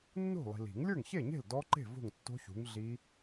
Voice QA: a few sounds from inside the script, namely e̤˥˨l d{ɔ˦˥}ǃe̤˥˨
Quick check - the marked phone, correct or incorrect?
correct